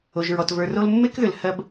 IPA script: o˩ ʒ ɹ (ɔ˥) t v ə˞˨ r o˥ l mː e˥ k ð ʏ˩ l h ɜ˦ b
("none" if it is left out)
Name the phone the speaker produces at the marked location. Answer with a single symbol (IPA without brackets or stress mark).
ɔ˩